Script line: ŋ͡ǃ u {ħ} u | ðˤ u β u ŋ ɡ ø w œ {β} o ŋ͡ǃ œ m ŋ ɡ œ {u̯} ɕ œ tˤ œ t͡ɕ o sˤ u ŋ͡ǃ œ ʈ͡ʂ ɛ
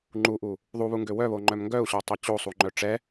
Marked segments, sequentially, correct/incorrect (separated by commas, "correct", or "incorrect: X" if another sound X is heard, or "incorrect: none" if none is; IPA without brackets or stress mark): incorrect: ʔ, correct, correct